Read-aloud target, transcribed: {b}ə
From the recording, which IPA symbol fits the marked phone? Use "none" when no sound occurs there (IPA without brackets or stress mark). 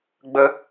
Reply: ɡ͡b